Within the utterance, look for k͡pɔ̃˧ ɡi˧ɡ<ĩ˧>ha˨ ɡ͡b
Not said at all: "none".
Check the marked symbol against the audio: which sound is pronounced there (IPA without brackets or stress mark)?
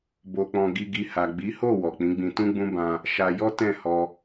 i˧